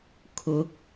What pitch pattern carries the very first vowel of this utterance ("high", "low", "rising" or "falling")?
rising